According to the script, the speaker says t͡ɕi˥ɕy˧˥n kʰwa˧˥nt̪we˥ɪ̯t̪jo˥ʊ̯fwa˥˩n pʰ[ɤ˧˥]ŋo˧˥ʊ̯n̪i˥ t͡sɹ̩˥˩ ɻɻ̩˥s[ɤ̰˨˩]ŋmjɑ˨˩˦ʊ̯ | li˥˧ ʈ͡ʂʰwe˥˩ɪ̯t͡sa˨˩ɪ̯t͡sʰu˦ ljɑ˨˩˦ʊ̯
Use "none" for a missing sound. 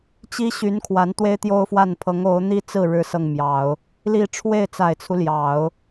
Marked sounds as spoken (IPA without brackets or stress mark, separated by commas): ɤ˧˥, ɤ˥˩